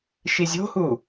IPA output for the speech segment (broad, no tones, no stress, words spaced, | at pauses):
ʃizʲo̤hu